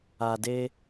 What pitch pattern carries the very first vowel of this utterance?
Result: low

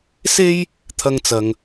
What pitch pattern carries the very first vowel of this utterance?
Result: high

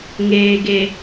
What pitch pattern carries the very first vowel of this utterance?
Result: low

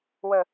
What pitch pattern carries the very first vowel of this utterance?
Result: low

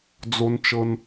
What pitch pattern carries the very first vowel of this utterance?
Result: low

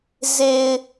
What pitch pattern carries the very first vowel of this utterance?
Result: low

